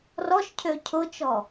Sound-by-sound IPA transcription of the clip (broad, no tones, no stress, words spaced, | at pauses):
rɔʃcʰø cʰʊt͡ʃɔ